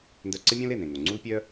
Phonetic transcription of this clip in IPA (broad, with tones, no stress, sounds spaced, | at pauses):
n d œ˧ ǀ ɪ˥ mʲ õ˥ l e˩ n ẽ˩ ŋ o˩ ŋ͡ǀ u˥ l pʲ œ˥